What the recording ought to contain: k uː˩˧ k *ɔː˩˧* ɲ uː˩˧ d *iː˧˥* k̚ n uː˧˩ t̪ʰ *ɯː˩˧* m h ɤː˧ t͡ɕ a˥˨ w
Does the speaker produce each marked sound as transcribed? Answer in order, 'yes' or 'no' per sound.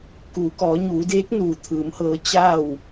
yes, no, yes

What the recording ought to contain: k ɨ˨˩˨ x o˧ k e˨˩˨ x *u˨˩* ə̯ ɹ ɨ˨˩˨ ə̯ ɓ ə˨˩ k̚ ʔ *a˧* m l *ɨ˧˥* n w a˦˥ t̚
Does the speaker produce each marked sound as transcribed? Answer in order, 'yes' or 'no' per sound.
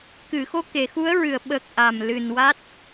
no, no, no

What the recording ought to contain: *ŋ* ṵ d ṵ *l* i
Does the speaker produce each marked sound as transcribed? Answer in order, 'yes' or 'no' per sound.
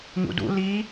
yes, yes

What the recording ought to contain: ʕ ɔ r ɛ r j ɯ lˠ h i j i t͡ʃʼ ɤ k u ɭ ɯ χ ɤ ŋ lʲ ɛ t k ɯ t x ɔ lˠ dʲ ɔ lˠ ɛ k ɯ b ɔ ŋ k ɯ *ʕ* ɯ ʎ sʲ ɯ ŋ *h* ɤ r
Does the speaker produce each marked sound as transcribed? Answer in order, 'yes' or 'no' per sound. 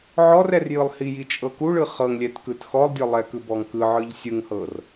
yes, yes

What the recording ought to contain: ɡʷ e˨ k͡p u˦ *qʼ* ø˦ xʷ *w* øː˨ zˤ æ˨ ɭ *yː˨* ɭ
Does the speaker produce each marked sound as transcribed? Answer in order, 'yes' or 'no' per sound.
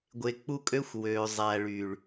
no, yes, yes

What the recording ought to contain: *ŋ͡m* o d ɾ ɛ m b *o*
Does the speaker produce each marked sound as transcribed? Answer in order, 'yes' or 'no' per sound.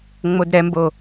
yes, yes

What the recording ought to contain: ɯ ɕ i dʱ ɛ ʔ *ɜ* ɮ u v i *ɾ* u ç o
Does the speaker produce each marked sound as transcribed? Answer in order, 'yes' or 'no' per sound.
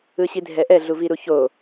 no, yes

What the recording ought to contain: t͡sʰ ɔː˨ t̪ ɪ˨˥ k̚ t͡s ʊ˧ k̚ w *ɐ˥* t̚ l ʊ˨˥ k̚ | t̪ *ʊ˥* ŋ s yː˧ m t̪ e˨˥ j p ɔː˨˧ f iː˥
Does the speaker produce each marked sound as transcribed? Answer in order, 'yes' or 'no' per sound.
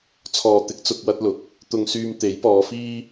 yes, no

